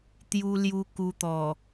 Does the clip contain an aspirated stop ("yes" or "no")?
no